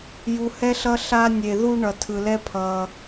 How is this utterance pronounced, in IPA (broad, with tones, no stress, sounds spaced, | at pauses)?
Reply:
j u˧ h ɛ˦ ɬ ʌ˦ ɬ a˧ nʲ e˨ ð u˧ ɳ ʌ˨ tʰ ɯ˨ l ɛ˦ pʰ ʌː˨